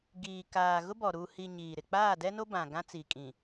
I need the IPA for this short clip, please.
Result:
ɡ iː˨ k aː˨ ɣ ʊ˦ b ɔ˨ ɾ u˨ h i˨ ɲ iː˨ ɾ ɪ˨ k͡p aː˦˨ d ɛ˦ n o˦ b ã˨ ɡ ã˦ t͡s i˨ kʼ ĩ˨

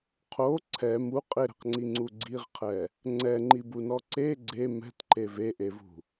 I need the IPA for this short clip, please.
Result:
qʰ o ǀʰ ɛ m u qʼ ɪ ɾ ɛ̤ q ŋ͡ǀ i ŋ͡ǀ u ɡ͡ǀ i ʁ qʰ ɛ | ŋ͡ǀ ɛ ŋ͡ǃ i b u n ɔ ǀ e ɡ͡ǀ e m ɛ̤ t ǃ e v e ʔ e v ṳ

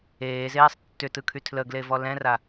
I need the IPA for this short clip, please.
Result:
eː z eː sˤ tː ʏ t ɯ kʰ y tʰ l ə ɡ l e v ɔ l ɛ̃ r a

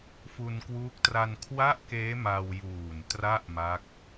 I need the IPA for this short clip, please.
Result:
f u˧ n k w uː˦˥ k̚ t r a˧ n kʰ w a˥˩ ʔ k eː˦˥ m a˧ w j uː˨˩ n t r a˥˩ ʔ m a˦˥ k̚

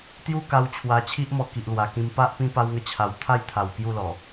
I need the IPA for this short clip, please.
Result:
t̪ j u˧ k a˧ w t͡ɕʰ w a˧ t͡ɕʰ i˦ ʔ m ɔ˧ k i˨ ʔ l w a˨˩ k ĩ˧ m p a˦ ʔ p ĩ˦ p a˦ w ŋ ə˥˧ t͡ɕʰ a˧ w t̪ʰ a˥˧ j t̪ʰ a˨˩ w k j u˥˧ l ɔ˨˩

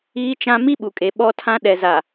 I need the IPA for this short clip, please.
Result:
iː˦ t͡ʃ ã˦ m i˦ ɓ u˨ kʼ e˨ ɓ ɔ˦ tʰ ã˦ ɗ ɛ˨ z a˨

